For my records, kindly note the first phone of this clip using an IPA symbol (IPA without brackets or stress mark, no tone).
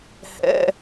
h